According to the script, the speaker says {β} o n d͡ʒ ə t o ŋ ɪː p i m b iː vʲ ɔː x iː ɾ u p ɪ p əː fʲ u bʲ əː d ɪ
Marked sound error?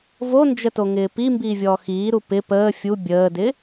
yes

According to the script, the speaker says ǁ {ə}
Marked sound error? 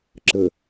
no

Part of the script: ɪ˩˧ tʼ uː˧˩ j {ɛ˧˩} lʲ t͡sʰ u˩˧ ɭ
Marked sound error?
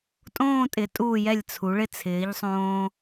no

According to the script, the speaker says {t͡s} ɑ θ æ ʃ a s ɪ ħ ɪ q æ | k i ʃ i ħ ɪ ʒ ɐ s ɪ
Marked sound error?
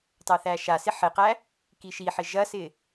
yes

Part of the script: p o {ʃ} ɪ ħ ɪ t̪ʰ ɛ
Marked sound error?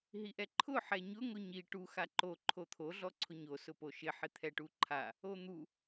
no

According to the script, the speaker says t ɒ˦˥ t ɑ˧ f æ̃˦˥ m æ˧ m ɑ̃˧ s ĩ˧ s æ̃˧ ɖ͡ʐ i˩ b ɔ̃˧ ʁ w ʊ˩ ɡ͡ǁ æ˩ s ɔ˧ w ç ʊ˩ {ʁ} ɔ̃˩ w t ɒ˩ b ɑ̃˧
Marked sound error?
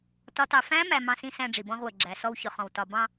yes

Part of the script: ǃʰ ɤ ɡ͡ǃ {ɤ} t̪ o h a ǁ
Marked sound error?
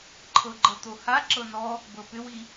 no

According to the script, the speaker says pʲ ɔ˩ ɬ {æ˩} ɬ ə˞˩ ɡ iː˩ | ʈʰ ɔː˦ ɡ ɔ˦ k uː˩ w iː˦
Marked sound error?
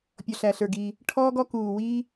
no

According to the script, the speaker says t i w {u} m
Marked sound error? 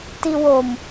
yes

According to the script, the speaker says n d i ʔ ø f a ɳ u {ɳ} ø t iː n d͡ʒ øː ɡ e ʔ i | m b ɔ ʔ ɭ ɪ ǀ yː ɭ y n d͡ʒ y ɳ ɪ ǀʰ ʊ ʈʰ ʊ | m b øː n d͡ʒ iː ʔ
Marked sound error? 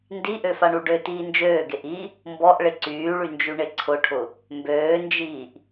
yes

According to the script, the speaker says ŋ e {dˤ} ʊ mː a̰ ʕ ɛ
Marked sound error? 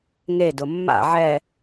yes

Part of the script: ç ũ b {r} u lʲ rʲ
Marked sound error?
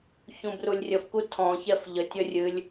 no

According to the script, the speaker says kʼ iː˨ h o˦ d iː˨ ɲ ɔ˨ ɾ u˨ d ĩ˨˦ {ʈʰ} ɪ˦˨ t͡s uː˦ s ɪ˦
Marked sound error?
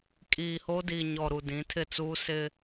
yes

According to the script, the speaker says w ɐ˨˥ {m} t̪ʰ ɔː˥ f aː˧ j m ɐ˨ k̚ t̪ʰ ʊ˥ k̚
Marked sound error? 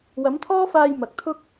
no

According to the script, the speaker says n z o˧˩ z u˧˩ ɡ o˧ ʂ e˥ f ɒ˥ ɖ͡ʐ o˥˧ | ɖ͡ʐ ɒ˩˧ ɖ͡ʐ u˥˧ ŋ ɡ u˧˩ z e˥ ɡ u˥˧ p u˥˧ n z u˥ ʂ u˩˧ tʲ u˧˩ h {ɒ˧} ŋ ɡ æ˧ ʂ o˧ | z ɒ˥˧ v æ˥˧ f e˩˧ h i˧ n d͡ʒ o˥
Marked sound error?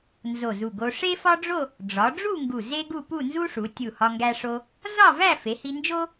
no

